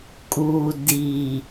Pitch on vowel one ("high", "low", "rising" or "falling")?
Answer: low